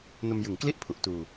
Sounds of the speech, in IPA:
n o˧ m j ɯ˨˩ ŋ k l i˥˩ ʔ pʰ u˨˩ ʔ t uː˧

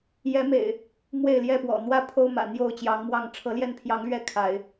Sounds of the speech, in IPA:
j ɛ˨˦ m ḛ˨˩ ɪ̯ | m w e˥˨ ɪ̯ l j ɛ˥˨ p w ɔ̰˨˩ n̪ w ä˥˨ pʰ o˦ ʊ̯ m ä̰˨˩ n̪ j o˥˨ ʊ̯ t͡ɕ j ɑ˨˦ ŋ m w ɑ˥˨ ŋ ʈ͡ʂʰ ɤ˨˦ l j ɛ˥˨ n pʰ j ɑ˨˦ ŋ l ɥ ɛ˥˨ kʰ a˨˦ ɪ̯

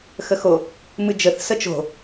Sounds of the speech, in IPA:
x ə x o | m ɨ d͡ʒ ə θ s ə t͡ʃ o̤

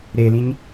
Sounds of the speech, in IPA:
ɾ e l ĩ ɲ

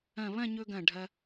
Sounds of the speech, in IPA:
ɐ̃˧˩ β ɐ̃˥˧ ɲ ɵ˧ ɡ ɐ̃˧˩ ɖʱ ɐ˧

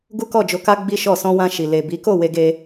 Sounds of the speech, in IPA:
ɡ u˦ k ɔ˦˨ d͡ʒ o˧ k a˦ ɡ͡b i˦ ʃ ɔ˦˨ s ɔ̃˧ w ã˧ ʃ i˨ l e˨ b i˨˦ k o˦˨ w e˧ ɡ e˧

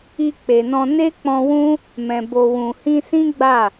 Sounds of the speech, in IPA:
i˧ k͡p e˨ n ɔ̃˧ n e˦ k͡p ɔ̃˧ w ũ˦ | m ɛ̃˨ b o˨ w ũ˨ h ĩ˧ s ĩ˦ ɡ͡b a˦˨

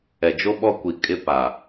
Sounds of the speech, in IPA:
ɛ˨ d͡ʒ o˦ ɓ ɔ˦ kʷ i˨ kʼ ɪ˦ p a˨

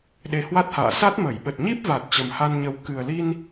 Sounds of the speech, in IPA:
ɗ e˨˦ h w a˦˥ t̚ h a̰ː˧˨ s a˦˥ t̚ m ə˧˩ j ɓ ə˨˩ t̚ ɲ i˦˥ p̚ v a˨˩ t̚ t͡ɕ ə˨˩ m h a˧ n ɲ ə˨˦ w k ɨ˨˩ ə̯ l i˧ n

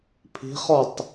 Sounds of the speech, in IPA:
pʰ i̤ χ ɔ tˤ

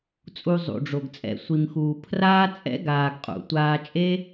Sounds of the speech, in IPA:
t͡sʼ u˧ zˤ ṵ˨ ɖ͡ʐ o˨ ɡ t͡sʼ ɛ̰˧ sʷ i˨ m x uː˨ pʰ r aː˦ t͡sʼ ɛ̰˦ ɡ aː˨ ɡ qʼ ṵ˨ tʷ aː˧ t͡ʃʼ e˦

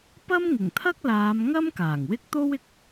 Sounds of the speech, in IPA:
p ɐ˥ m ŋ ɪ˨˩ ŋ t̪ʰ ɐ˥ k̚ l aː˨˧ m ŋ ɐ˥ m k aː˨˩ ŋ w ɪ˥ k̚ t̪ o˥ w ɪ˧ k̚

